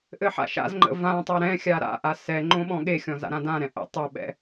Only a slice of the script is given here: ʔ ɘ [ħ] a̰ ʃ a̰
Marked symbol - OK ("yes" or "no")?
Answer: yes